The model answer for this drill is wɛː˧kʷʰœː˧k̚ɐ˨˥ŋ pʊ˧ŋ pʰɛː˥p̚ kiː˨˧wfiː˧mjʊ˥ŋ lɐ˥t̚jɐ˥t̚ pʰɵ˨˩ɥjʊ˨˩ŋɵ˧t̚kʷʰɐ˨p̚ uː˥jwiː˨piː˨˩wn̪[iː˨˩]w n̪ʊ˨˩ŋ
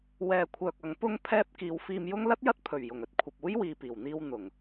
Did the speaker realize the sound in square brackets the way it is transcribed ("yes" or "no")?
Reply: no